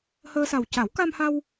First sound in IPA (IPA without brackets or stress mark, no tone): h